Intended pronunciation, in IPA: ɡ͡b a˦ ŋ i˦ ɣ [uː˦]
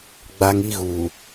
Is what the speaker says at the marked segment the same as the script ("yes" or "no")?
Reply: no